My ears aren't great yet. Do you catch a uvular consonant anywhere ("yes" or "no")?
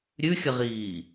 yes